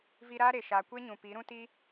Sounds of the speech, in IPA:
v i˧ ɾ aː˦ ɾ e˨ ʃ aː˨ kʷ e˦ ɲ ũ˨ p i˨˦ ɾ ũ˦ t i˦

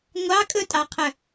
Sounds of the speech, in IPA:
ŋʷ ɑ kʼ ɵ tʼ ɑ qʰ œ

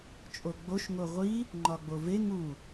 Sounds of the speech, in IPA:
t͡ʃʼ o ɡ͡b o ʃ ŋ o ʁʷ i | ŋ͡ǃ ɒ ɡ͡b o v e ŋ u

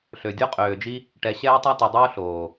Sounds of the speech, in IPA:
ɬ ø˨ dʲ o˦ qʼ øː˨ d͡ʒ i˦ | ʈ ɛ˨ ɕ ɛː˦ tˤ a˦ t i˨ dˤ oː˦ ɬ oː˨

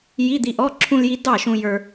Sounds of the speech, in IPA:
j i˧˥˧ d̪ i˧ ʔ ɔ˧˥˧ ǁʰ ũ˧ l j i˧ d ɑ˥˩ ʃ ũ˧ j ə˞˧

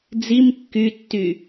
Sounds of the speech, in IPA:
d͡z i m kː y tː y

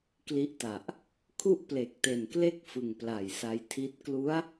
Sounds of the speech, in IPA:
k l i˦˥ ʔ t a˨˩ ʔ | kʰ u˥˩ ʔ p l e˨˩ k̚ t e˨˩ n k l e˥˩ k̚ f ɯ˨˩ ŋ p l a˨˩ j s a˧ j tʰ i˦˥ t̚ k l u˦˥ a̯

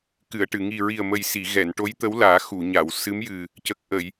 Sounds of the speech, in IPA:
k ɨ˨˩˨ ə̯ ʈ ɨ˨˩˨ ŋ i˨˩ ɹ i˨˩ ə̯ m ə˨˩ j s i˨˩˨ ɣ ɛ˨˩˨ n ʈ o˧˥ j t̪ ə˧˥ w l aː˨˩˦ x u˨˩˨ ɲ a˨˩˨ w s ɨ˧˥ m j ɨ˨˩ | c ə˨˩ k̚ ʔ ə˨˩˨ j

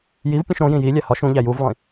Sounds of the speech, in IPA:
j i v pʲ ũ ʃ ɾ õ j ĩ j i lʲ æ h ɒ ʃ ũ ʎ æ j u v lˠ ĩ

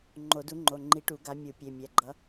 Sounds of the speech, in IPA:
ŋ͡ǃ o˨˩˦ d u˨˥ ŋ͡ǃ o˩˧˩ ŋ͡ǃ i˨˥ ʈ u˨˩˦ ɡ a˨˥ mʲ u˨˩˦ pʲ e˩˧˩ mʲ ɛ˩˧˩ ɡ͡ǃ ʌ˨˥

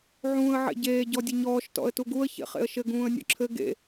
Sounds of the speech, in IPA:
ʕ ũː ə̯ ʕ ḛ ɟ eː ɟ ɔ dʲ ɘ ɲ ɔː ʃ t ɔ̰ ə̯ t u ɡ u ə̯ ç ḛ χ ḛ ə̯ ʃ ɘ ɡ ũː ə̯ nʲ ɔ̰ ǁʰ ɘ ɡ ḛ

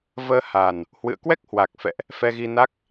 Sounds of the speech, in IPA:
v əː˧ h a˨˩ n | h w ɨ̰˧˨ ə̯ k w ɛ˦˥ k̚ h w a˨˩ k̚ f ɛ̰˧˨ ʔ | f ɛ˧ ɣ i˧ n a˦˥ k̚

